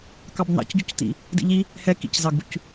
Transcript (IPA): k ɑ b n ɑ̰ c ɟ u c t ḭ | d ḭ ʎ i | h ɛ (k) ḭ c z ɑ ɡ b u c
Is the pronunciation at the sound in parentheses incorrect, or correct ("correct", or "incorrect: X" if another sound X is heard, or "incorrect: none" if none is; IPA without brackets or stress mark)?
correct